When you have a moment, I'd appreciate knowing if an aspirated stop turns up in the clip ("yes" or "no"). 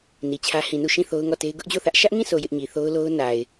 yes